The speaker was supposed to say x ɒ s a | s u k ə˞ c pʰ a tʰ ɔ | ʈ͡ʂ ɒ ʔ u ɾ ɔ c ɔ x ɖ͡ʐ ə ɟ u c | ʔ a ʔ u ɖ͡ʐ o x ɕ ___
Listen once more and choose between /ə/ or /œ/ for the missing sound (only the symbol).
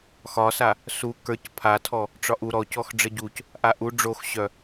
œ